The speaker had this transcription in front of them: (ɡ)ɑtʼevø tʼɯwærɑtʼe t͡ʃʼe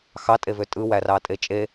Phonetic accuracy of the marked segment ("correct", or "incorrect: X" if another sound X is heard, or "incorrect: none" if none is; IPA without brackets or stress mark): incorrect: x